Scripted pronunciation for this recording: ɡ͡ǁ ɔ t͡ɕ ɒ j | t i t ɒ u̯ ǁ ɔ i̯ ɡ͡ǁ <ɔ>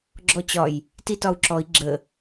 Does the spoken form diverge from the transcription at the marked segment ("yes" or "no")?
yes